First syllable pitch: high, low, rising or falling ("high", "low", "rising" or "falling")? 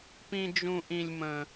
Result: high